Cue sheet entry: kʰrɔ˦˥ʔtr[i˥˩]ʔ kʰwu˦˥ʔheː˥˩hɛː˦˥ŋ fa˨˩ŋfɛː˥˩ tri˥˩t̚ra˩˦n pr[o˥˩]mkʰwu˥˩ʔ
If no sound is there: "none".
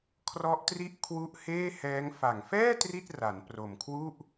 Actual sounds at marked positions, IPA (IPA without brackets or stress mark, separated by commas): i˥˩, o˨˩